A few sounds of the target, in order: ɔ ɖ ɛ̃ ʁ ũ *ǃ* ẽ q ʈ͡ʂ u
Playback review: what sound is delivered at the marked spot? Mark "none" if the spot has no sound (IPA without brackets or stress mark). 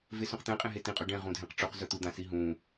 dʱ